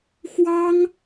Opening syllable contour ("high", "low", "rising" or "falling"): high